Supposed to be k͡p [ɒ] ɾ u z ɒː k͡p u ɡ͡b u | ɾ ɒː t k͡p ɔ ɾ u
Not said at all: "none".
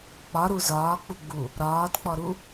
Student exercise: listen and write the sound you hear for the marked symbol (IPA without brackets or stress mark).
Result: ɒ